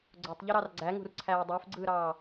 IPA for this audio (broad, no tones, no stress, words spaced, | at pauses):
ɡ͡ǀotˤʎɯɾɑr ɡ͡ǀæŋṳrǀʰæː dˤøfɡ͡ǀɯːɾɑː